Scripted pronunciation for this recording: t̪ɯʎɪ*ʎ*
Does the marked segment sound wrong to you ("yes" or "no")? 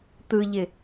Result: yes